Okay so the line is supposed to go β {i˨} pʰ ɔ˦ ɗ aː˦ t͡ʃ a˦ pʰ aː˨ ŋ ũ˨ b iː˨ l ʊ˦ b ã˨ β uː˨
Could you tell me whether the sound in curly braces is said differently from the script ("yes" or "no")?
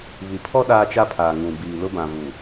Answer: no